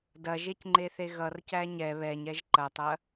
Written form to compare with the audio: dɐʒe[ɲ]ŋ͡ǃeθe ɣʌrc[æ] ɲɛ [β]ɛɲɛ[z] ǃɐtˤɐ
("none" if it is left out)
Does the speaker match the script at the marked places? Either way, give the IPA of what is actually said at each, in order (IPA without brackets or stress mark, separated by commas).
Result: c, æ, β, ʒ